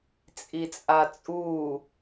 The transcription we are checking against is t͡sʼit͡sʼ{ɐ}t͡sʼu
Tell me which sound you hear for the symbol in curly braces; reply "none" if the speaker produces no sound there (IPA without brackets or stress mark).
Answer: a